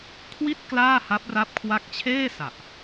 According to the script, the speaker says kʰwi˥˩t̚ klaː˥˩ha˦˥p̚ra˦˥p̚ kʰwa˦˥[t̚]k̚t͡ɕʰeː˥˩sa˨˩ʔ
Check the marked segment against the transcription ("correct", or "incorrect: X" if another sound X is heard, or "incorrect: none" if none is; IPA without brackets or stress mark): incorrect: none